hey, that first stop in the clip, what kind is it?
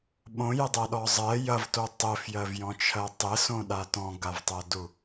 implosive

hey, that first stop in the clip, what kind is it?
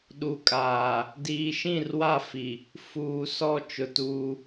implosive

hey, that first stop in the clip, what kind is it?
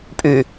ejective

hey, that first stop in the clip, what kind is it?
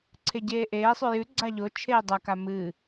click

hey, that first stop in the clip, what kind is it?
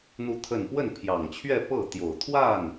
aspirated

